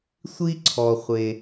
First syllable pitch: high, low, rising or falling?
high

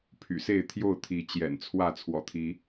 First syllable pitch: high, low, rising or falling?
low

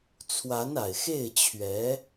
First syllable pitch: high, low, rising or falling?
rising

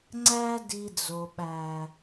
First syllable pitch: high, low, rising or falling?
high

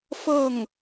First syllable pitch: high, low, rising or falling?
falling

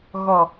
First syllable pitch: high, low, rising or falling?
low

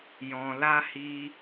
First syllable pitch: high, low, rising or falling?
low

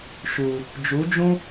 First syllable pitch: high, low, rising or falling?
low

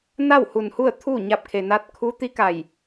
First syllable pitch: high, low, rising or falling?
falling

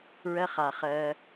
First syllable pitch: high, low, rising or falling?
high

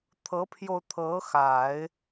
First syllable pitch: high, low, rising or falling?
rising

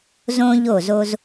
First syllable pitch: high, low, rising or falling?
high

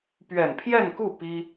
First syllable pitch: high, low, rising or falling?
low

